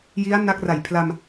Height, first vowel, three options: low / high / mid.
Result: high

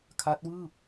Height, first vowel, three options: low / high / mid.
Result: low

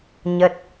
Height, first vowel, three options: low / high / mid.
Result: mid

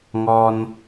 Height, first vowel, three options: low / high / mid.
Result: mid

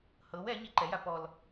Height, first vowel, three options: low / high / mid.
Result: mid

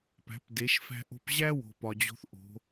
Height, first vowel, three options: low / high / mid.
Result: low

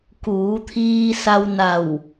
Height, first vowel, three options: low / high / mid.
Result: high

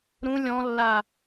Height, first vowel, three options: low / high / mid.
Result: high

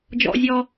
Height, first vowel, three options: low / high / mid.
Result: mid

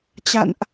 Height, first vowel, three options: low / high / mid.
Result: low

